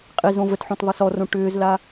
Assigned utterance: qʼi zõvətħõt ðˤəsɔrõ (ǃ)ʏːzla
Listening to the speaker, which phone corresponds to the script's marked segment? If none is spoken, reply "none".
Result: ʈ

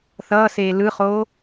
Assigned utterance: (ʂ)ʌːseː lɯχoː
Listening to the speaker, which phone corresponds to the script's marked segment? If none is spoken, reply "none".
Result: θ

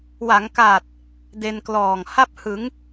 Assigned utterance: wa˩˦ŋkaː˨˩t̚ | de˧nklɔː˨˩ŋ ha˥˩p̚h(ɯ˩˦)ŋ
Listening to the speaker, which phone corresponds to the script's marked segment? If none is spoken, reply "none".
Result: ɯ˩˦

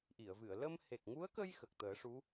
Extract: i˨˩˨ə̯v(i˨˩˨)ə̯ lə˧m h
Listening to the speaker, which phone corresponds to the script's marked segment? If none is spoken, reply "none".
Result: ɨ˨˩˨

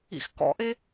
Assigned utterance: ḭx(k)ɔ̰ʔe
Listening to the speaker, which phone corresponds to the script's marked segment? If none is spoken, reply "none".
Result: k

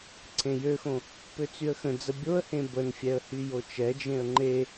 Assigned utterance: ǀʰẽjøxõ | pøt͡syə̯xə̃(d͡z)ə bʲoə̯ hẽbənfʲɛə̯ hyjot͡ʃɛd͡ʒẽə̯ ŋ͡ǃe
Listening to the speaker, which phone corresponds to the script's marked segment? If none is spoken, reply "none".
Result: d͡z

